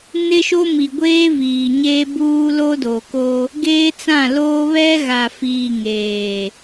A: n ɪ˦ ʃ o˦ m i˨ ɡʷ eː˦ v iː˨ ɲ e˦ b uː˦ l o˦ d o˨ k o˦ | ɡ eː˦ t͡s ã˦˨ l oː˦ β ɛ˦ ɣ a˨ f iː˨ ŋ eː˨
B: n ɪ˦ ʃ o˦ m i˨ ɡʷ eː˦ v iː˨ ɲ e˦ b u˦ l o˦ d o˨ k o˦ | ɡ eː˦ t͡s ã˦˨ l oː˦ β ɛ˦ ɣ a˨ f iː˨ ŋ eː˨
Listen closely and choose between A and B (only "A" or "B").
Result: A